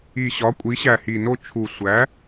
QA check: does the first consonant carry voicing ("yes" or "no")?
no